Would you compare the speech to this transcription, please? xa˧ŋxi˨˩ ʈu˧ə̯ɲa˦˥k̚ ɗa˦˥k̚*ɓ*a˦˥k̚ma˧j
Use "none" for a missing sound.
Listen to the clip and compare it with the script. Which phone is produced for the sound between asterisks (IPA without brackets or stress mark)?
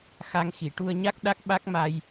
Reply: ɓ